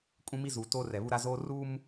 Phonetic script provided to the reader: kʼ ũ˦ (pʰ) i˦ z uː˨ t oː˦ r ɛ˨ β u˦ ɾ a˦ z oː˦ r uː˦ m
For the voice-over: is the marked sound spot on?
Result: no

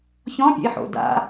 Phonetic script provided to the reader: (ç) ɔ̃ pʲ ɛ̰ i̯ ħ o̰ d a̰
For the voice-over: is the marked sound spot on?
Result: yes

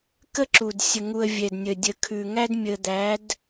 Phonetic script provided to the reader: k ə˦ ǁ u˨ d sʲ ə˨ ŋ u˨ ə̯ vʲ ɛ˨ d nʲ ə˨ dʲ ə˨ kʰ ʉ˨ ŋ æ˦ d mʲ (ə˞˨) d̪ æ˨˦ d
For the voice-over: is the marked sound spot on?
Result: no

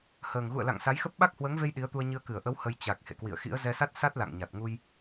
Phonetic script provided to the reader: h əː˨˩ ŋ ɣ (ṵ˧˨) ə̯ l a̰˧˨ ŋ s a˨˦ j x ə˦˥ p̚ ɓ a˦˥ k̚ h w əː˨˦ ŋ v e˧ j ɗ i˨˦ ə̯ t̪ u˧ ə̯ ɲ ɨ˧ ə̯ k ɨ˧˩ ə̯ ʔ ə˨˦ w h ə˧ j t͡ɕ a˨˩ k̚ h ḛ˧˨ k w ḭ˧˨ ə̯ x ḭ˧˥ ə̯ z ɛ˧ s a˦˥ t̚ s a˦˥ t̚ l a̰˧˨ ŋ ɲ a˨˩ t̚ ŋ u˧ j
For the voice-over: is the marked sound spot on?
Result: yes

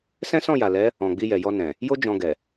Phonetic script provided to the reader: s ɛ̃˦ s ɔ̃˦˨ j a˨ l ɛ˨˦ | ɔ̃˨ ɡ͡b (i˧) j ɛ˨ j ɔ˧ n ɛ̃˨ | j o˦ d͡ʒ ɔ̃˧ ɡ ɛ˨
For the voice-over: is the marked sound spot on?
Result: yes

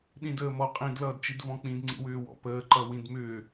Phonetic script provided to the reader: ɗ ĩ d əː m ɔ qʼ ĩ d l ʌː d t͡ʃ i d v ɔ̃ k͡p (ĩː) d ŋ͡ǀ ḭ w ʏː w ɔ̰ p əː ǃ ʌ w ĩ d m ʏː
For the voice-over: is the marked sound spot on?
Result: no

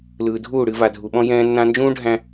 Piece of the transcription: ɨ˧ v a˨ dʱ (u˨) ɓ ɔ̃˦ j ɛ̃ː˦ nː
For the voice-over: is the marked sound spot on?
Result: yes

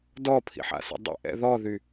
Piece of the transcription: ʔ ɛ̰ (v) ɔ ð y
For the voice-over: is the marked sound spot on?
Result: no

